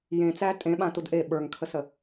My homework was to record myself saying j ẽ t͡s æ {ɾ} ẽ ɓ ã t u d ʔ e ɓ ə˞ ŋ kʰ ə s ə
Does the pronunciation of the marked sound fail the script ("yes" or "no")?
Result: yes